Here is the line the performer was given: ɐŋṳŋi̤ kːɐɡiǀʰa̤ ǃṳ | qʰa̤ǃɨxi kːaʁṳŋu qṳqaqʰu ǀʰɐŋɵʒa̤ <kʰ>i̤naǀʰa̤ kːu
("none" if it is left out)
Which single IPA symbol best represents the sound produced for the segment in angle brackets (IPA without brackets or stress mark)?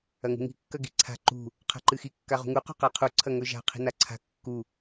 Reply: qʰ